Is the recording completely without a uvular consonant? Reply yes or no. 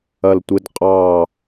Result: no